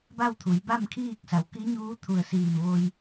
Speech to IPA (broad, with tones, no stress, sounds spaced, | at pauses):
b a˥˨ w t̪ʰ u˩˧ j b a˥˨ m kʰ iː˥˨ k̚ s a˩˧ w k i˧˥ ɲ uː˧˥ t̪ʰ u˧˩ ə̯ s iː˧˩ m ʋ o˧ j